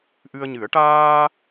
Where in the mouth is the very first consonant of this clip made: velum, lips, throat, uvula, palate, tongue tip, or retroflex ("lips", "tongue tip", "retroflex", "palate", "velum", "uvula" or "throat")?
throat